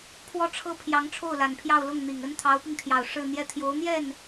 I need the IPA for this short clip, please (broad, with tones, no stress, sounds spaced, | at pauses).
pʰ w ɔ˥˩ ʈ͡ʂʰ ɤ˥ pʰ j ɑ˧˥ ŋ ʈ͡ʂʰ o˥˩ ʊ̯ l a˨˩ n pʰ j ɑ˥˧ ʊ̯ l ʊ˥˩ ŋ n̪ i˨˩ ŋ ə˥ n t̪ʰ ɑ˧˥ ʊ̯ p i˧ ŋ t̪ʰ j ɑ˨˩ ʊ̯ ʂ ɻ̩˥˧ n̪ j ɛ˥˩ t̪ʰ j o˧˥ ʊ̯ n̪ j ɛ˥˩ n